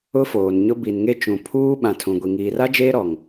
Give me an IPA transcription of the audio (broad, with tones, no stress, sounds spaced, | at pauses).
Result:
ʊ˦ f oː˨ n ɲ ʊ˦ b i˨ n ŋ e˦ t͡ʃ ũ˨ pʰ uː˦ ɓ ã˨ tʰ ũ˨ ɡʷ i˨ ŋ iː˨ r a˦ d͡ʒ eː˦ ɾ ɔ˨ ŋ